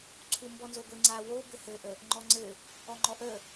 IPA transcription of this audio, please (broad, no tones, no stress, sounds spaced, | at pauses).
ǀʰ u m b ɔ n z o ɡʷ ɘ ŋ͡ǀ a w o b ɘ h ɘ ʔ ə | ŋ͡ǃ ɔ ŋ͡ǀ ɘ | ɔ ŋ͡ǃ ɔ ʔ ə